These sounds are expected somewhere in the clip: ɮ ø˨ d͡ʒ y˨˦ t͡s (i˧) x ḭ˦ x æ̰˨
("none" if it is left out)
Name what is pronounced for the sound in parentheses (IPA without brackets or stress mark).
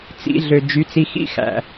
i˧